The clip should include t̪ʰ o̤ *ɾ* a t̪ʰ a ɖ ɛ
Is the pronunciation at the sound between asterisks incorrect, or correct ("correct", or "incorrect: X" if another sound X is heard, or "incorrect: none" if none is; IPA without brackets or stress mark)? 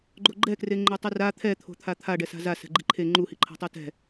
incorrect: t̪ʰ